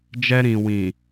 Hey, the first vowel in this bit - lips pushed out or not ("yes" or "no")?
no